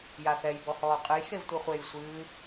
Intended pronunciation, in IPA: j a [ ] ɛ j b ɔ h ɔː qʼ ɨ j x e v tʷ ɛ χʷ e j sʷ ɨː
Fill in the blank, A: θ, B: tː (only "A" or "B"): A